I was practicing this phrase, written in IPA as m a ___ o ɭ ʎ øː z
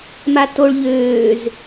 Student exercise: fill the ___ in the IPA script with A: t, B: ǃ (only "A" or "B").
A